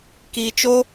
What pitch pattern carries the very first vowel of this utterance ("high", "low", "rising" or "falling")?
low